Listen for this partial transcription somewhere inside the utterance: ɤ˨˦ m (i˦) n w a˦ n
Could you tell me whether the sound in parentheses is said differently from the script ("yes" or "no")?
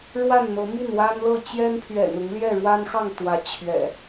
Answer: yes